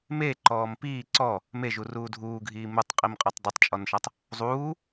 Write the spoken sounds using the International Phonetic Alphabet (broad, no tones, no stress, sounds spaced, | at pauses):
m e ǃ ɔː m p iː ǀ ɔ | m e ʒ u r uː dʱ uː ɡʱ iː m u tˤ qʼ i m qʼ ɔ tˤ dˤ i tˤ t͡ʃʼ ɔ n ʃ a tˤ | zˤ uː